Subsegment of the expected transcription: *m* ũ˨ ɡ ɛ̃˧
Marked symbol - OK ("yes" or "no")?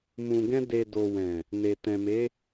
yes